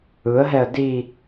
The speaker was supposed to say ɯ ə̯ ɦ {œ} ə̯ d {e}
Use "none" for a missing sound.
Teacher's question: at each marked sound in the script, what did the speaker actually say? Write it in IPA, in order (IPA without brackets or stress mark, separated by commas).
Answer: ɛ, i